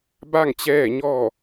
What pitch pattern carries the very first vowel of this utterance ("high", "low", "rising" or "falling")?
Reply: falling